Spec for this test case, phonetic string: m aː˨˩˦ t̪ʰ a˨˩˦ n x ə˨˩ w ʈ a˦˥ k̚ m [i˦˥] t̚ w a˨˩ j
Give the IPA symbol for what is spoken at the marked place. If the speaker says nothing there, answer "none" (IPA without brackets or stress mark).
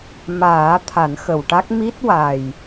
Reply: i˦˥